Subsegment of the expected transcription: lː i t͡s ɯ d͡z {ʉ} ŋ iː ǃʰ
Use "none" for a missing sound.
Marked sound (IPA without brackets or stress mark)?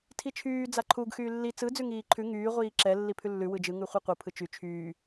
ʉ